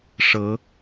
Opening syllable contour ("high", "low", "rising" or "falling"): rising